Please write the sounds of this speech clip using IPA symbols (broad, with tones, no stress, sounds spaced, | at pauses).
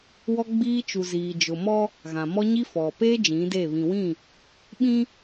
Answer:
w ɔ˦ ɡ͡b iː˦ t͡ʃ u˨ z iː˨ d͡ʒ ʊ˨ m ɔ˦ | ɣ ã˨ m ɔ˦ ɲ i˦ f ɔ˨ p eː˦ d͡ʒ ĩ˨˦ d e˦˨ β ĩ˨ w ĩ˦˨ | ɓ ĩ˦